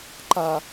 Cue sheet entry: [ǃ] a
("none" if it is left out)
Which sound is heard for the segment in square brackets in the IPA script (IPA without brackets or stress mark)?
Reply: ǃ